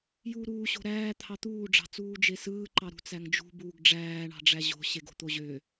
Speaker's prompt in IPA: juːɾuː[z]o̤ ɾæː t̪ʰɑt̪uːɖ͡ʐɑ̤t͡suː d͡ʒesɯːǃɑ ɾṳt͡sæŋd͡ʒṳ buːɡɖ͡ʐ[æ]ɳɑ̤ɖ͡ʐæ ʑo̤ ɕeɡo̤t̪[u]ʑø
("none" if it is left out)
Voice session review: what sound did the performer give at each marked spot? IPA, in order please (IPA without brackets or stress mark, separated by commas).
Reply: ɕ, æː, o